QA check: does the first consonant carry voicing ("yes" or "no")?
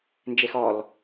yes